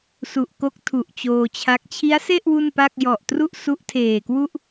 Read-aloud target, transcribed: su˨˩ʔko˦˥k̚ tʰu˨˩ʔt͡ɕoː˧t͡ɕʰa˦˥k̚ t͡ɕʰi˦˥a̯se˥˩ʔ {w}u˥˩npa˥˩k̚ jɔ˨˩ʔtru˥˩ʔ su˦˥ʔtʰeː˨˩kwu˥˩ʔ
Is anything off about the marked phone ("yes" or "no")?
no